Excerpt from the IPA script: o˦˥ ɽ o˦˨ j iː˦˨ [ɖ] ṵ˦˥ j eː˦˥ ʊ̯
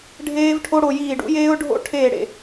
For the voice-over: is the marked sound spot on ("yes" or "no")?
yes